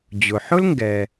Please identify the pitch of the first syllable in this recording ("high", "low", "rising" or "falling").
low